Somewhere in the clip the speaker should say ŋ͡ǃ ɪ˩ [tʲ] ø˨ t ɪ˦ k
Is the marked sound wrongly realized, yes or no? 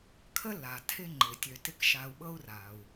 no